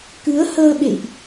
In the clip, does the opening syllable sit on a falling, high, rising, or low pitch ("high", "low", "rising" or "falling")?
rising